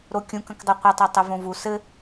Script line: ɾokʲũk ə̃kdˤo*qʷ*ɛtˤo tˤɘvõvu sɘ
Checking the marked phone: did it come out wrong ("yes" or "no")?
no